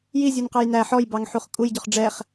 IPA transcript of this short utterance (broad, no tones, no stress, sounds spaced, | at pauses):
j i zʲ u n q ɑ j n æ ħ ɔ j b ɑ ŋ ħ u χ kʼ u j ɟ ɔ χ ɖ͡ʐ ɛ χ